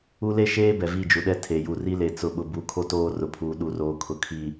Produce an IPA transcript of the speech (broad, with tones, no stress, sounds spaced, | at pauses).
u˦ l e˦ ʃ eː˦ b ɛ˨ v i˦˨ d͡ʒ u˨ ɗ ɛ˦ tʰ e˨ j u˨ r i˦ l e˨ t͡s ʊ˨ ɓ ʊ˨ b u˨ kʰ o˦ t oː˦ r ʊ˨ pʰ uː˨ ɗ u˨˦ r oː˨ kʰ ʊ˨ kʰ i˨